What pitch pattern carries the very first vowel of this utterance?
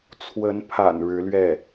rising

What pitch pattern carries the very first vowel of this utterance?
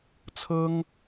high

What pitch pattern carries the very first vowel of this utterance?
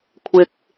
low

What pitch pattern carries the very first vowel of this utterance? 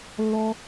high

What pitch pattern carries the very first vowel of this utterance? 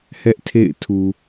high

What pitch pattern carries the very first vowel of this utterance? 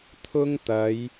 high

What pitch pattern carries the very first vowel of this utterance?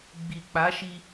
low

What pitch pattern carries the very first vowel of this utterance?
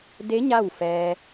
rising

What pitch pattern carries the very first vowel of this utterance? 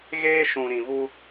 high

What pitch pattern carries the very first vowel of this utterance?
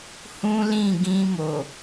high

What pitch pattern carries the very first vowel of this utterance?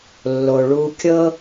low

